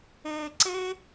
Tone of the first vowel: low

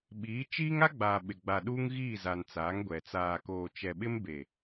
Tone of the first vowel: rising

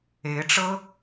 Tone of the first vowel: rising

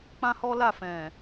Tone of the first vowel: high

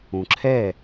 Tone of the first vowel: low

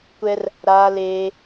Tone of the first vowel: high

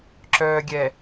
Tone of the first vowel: low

